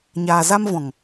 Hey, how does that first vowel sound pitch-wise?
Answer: low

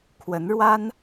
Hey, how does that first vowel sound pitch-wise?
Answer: rising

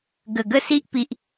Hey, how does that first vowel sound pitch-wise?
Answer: low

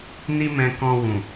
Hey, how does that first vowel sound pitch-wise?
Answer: high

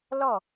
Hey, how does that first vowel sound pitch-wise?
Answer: falling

